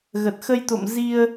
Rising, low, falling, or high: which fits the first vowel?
low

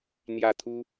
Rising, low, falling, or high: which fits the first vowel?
falling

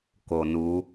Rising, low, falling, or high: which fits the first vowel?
low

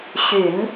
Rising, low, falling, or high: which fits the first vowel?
low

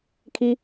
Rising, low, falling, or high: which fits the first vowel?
high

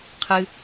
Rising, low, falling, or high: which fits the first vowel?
low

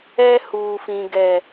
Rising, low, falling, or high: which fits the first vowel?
high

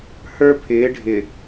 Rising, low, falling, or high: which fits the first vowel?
high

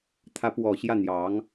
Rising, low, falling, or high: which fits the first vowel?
rising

